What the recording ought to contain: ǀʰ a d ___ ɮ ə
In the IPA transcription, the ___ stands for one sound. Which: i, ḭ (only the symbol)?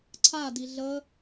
i